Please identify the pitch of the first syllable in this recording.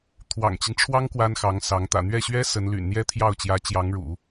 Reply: low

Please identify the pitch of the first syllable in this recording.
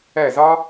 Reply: falling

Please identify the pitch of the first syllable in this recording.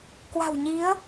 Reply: low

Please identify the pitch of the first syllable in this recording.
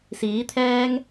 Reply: rising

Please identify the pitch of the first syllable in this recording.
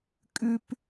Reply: low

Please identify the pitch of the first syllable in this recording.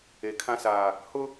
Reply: low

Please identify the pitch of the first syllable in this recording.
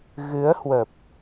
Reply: rising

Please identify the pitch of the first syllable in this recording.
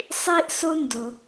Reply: high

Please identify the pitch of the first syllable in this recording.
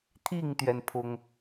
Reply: falling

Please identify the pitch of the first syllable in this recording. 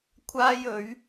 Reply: high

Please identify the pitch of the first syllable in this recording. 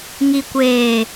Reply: low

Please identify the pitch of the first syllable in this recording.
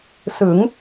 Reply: rising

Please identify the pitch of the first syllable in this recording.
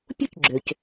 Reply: high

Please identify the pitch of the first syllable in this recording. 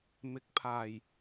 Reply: rising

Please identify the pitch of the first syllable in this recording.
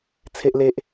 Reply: high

